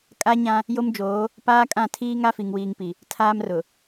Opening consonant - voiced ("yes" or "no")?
no